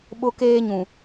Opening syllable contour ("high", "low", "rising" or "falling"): high